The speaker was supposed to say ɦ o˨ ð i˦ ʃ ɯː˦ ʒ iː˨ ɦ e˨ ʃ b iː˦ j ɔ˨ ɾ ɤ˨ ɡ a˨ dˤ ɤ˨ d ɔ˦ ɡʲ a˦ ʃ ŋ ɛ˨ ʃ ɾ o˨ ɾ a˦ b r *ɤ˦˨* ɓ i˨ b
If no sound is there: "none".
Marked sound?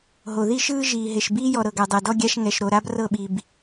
ɤ˦˨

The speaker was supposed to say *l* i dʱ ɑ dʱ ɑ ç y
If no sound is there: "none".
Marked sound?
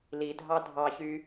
l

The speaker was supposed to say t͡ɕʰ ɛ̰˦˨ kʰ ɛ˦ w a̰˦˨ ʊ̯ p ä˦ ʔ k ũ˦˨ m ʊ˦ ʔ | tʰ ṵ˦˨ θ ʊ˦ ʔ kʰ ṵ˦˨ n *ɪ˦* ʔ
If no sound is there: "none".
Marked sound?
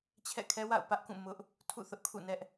ɛ˦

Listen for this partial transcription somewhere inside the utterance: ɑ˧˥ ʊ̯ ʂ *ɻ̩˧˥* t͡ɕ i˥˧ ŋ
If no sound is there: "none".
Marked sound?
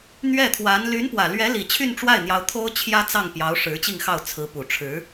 ɻ̩˧˥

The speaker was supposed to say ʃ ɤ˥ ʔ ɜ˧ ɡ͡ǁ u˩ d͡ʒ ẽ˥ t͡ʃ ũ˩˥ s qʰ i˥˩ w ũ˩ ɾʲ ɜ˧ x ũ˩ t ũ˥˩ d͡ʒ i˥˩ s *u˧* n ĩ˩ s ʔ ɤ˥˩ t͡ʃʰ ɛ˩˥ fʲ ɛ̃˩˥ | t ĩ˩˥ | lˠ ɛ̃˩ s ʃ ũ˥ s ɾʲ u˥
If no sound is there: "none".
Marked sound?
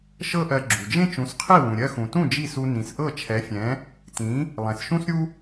u˧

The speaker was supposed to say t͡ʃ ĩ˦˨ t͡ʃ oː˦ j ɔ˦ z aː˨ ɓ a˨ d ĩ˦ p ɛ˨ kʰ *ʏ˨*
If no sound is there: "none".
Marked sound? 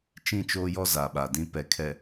ɛ˨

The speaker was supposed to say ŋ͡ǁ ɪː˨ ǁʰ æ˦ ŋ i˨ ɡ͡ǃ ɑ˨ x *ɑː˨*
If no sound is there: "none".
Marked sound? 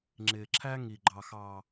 ɑː˨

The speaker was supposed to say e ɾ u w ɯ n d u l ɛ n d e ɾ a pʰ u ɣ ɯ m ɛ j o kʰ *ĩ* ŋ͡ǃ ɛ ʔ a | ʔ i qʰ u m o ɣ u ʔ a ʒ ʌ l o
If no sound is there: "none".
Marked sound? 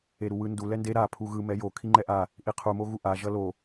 i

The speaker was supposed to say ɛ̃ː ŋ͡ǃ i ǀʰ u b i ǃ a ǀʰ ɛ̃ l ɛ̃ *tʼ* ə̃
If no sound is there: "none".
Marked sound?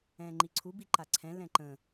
ǃ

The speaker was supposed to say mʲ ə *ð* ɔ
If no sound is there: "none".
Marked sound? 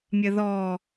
ð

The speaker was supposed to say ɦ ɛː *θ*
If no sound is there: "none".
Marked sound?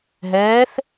θ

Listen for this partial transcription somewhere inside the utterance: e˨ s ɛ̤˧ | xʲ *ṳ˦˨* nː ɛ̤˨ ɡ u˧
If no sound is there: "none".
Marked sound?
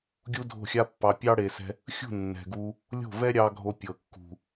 ṳ˦˨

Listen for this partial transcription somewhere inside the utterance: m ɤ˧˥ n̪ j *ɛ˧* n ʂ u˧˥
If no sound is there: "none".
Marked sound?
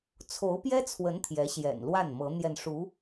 ɛ˧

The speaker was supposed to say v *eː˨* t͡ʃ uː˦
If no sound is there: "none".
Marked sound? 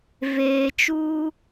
eː˨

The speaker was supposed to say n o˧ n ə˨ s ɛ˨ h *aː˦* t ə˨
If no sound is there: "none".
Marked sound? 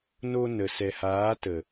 aː˨˦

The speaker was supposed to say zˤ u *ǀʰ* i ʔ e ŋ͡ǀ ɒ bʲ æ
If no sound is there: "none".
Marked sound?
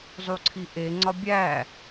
ǀʰ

